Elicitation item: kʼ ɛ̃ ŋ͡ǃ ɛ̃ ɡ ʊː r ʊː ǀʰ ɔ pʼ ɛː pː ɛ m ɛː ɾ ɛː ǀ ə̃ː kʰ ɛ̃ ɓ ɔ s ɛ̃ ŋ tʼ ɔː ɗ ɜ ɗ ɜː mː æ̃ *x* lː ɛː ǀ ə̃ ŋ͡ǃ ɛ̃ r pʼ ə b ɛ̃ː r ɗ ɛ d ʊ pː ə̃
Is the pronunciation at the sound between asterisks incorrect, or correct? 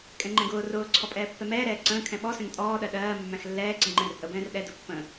correct